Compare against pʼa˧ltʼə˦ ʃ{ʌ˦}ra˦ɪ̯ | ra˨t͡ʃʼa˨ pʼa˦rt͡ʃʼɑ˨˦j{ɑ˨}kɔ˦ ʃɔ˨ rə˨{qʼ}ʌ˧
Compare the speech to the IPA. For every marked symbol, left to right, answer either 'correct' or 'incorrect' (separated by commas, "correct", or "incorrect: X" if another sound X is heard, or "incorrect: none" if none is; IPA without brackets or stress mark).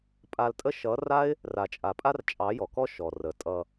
incorrect: ʌ˨˦, incorrect: ɔ˨, incorrect: tʼ